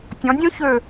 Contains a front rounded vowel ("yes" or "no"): yes